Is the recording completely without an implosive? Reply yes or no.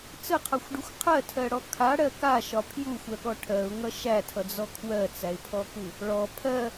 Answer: no